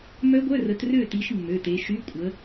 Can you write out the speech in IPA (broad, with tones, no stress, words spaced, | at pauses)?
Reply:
mœ˦˥ɡʷœ˧˥˧rə˨˦t rø˥˨ti˨˦ʃ mːø˩˧˩te˨˦ ʃy˧˥˧kʷʼə˨˦